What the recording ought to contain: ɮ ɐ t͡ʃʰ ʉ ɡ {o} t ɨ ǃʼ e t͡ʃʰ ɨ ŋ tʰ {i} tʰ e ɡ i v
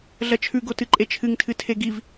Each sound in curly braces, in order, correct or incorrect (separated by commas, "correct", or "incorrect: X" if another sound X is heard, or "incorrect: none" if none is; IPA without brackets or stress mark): correct, incorrect: ɨ